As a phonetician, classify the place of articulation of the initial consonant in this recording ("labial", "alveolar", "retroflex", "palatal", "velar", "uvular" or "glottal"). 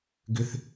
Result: velar